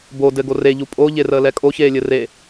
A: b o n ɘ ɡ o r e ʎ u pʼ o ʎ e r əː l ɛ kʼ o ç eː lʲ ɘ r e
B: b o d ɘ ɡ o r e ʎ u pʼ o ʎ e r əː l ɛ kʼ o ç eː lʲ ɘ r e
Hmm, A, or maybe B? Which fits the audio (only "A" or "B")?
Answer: B